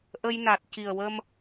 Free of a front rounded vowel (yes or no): yes